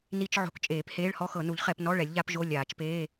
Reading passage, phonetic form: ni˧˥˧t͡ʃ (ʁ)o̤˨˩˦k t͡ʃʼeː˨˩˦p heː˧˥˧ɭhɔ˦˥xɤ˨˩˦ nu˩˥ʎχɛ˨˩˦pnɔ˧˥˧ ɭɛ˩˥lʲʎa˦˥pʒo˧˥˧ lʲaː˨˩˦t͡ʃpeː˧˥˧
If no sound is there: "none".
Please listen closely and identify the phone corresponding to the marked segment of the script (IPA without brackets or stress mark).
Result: ʕ